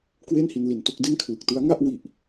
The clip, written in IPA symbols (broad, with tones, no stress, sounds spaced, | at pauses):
k w e˥˩ n h i˧ n l i˨˩ n t o˥˩ k̚ d e˥˩ n kʰ l ɯ˨˩ k̚ t ɯ˦˥ a̯ ŋ a˥˩ ʔ w i˨˩ ʔ